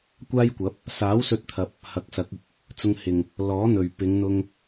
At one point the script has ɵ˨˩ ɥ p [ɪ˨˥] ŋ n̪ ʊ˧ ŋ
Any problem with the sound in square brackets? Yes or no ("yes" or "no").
yes